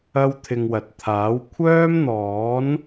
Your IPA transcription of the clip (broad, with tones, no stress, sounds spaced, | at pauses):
ɐ˥ w t̪ʰ ɪ˧ ŋ w ɐ˨ t̚ t̪ʰ aː˨˥ w kʷʰ œː˥ m n̪ ɔː˨˥ n